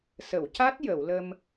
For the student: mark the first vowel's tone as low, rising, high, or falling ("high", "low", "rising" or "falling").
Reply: low